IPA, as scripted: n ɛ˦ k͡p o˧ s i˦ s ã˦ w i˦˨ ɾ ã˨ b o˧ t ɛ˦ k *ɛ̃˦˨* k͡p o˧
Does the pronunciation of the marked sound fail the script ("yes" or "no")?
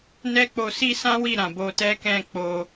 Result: no